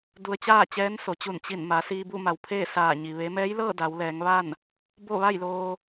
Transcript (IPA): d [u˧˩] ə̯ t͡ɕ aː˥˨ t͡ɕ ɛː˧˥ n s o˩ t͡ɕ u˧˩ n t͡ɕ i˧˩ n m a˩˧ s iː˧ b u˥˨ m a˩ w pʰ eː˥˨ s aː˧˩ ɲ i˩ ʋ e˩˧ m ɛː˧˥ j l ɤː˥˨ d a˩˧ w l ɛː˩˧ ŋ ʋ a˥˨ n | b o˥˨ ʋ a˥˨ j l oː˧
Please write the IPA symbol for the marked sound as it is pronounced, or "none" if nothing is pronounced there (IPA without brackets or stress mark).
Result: u˧